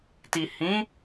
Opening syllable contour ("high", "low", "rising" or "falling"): low